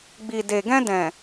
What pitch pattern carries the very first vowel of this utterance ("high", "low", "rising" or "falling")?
low